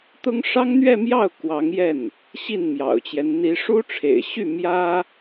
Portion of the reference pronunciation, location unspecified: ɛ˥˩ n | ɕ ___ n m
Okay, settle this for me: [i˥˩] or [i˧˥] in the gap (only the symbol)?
i˥˩